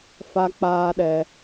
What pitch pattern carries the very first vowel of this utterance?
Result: high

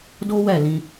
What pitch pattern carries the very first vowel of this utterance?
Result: high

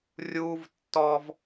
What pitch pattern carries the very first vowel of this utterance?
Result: high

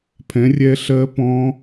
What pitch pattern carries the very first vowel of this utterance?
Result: rising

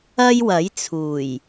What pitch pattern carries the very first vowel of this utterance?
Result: high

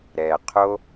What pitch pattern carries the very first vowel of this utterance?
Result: low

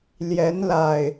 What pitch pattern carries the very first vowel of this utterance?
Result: rising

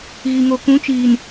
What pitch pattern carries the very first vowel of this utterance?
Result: low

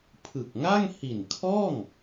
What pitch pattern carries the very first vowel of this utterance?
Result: low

